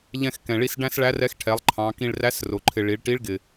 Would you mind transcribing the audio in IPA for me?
ʎɛ̃˧xkɛ̃˩ɭi˧s ɖæ̃˥sɭæ˧˥rɛ˧˥x ʈʰɛ˩˧lˠ ǃʰɑ̃˩˧ kĩ˧ɭræ˧˥srʊ˩ ǃʰɪ˩ ɭi˩˧ɭʈi˧˥ɭɡɪ˩

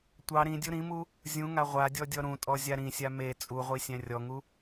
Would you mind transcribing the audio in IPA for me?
tʷɑ ɾĩdʲu ɾĩmu | zʲũŋa ʁʷadʲɔdʲɔ ɾũtʼɔzʲa ɾĩsʲa me t͡sʼuʁʷisʲæ̃ rʲɔŋu

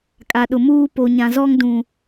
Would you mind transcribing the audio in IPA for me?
kʼa˨ɗʊ˨muː˦ po˨ɲã˨zɔ˦ŋ dũ˨

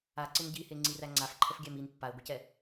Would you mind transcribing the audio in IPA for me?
aǀɪn ɟiheŋ͡ǀiræ ŋ͡ǀafǃʰəfɡʲæm in pːae̯ɡʷecɛ

